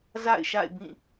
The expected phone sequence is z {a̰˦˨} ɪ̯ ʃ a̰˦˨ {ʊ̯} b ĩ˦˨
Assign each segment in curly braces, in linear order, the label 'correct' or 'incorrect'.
correct, incorrect

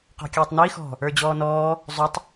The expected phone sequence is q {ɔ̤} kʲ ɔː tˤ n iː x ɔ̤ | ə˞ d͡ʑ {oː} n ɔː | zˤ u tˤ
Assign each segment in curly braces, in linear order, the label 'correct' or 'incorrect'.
correct, incorrect

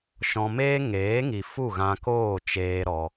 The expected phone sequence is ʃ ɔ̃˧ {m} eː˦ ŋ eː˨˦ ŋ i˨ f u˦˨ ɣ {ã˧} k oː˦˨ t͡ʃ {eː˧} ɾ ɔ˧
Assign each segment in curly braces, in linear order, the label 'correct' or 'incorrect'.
correct, correct, correct

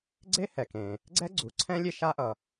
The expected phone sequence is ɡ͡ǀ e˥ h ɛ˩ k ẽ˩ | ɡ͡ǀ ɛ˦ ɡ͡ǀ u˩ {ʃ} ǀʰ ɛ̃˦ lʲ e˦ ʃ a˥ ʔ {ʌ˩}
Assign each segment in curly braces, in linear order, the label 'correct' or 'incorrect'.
incorrect, correct

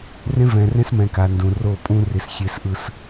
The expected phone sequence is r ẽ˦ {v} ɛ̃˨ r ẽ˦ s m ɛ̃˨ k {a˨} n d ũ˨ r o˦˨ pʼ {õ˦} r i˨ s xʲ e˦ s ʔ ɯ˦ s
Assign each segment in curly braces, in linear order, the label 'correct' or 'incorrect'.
correct, correct, incorrect

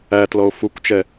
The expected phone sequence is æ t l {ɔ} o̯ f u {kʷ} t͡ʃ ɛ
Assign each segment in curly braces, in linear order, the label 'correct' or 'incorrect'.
correct, correct

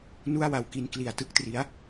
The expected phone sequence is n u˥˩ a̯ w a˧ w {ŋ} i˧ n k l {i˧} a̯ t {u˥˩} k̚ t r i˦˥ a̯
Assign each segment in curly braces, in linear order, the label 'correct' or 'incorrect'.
incorrect, incorrect, incorrect

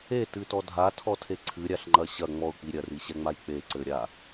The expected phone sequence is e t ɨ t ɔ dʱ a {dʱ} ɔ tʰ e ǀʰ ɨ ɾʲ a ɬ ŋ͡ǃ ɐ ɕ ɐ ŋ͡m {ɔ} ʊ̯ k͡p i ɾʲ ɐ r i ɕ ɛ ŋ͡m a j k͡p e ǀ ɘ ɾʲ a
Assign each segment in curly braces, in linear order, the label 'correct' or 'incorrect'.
incorrect, correct

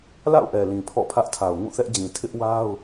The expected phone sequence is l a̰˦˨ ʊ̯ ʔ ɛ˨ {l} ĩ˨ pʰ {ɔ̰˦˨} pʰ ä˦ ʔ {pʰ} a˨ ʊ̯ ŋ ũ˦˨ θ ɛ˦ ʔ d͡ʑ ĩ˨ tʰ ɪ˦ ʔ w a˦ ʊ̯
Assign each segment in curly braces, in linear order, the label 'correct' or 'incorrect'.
correct, correct, incorrect

